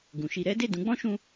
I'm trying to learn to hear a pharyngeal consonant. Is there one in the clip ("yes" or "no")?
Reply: no